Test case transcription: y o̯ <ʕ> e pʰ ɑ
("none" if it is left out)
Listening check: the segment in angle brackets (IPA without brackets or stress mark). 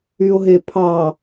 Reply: ɦ